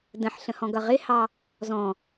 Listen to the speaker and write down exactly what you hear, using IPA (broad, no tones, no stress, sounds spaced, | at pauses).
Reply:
d ə̃ ħ ɬ ə̃ h ɔ̃ ɡ ʌ ʁ ɪ h ɑ | z ɔ̃